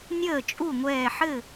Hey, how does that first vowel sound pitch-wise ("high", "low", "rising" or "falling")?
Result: falling